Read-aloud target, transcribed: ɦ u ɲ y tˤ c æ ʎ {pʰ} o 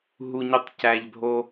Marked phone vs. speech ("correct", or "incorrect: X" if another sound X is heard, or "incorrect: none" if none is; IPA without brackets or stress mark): incorrect: bʱ